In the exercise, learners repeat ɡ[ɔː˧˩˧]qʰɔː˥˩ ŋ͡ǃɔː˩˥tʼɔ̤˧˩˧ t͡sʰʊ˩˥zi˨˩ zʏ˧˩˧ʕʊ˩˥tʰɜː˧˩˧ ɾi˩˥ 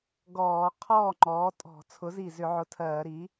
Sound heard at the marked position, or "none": ɔː˧˩˧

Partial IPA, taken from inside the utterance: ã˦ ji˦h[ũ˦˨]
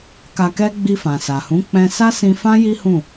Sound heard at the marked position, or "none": ũ˦˨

